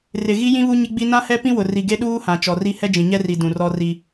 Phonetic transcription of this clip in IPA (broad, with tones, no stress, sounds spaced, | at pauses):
r ɪ˨ ɣ i˦ j ĩ˦ β u˦ ɲ ɪ˦ ɡ͡b i˦ n ã˦ h ɛ˦ p ĩ˦ w ʊ˨ r i˨ ɡ e˦ ɗ uː˦ h ã˨ t͡ʃ ɔ˨ r i˦ h ɛ˦ d͡ʒ ĩ˨ ɲ ɛ˦ r i˨ d ũ˨ r ɔ˦ r i˦